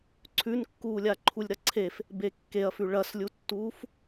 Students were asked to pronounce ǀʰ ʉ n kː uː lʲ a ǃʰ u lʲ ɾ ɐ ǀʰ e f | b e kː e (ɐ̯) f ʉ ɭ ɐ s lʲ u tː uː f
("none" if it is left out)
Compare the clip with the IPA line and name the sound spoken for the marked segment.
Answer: ɐ̯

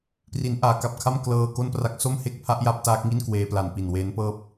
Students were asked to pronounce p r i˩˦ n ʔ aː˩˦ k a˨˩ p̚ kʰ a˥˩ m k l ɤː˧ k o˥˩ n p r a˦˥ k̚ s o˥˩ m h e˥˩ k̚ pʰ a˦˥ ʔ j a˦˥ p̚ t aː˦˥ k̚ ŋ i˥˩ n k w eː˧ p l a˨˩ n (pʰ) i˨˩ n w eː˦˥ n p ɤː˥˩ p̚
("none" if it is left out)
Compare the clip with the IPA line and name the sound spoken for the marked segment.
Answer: p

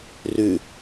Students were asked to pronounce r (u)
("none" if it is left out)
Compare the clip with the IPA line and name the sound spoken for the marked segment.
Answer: ʉ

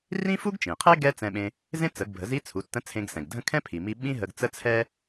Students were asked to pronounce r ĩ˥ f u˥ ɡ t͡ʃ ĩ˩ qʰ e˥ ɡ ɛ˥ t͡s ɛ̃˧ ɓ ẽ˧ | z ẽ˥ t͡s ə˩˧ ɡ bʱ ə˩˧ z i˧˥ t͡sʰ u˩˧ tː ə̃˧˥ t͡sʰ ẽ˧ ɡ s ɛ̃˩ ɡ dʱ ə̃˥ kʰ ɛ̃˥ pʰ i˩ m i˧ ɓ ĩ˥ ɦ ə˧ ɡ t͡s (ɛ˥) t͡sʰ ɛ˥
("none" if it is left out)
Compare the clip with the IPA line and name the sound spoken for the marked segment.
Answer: ə˥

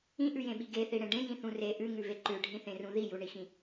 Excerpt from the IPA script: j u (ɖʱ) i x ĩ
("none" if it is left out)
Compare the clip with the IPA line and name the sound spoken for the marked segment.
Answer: ɳ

